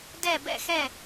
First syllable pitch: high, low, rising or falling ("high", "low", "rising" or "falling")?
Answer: falling